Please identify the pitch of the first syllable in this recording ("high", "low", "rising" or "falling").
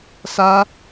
high